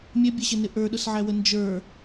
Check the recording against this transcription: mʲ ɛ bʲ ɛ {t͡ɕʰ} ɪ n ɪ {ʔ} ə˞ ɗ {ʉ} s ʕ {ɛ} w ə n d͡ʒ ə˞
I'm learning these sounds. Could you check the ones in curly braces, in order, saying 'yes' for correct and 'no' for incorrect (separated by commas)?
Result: no, yes, no, no